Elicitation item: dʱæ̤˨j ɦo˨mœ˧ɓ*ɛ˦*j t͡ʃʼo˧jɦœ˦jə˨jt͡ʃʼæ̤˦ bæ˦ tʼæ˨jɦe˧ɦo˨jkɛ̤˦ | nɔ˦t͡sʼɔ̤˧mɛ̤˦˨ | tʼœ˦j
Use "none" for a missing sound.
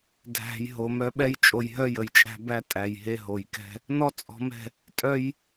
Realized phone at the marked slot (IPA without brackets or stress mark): ɛ˦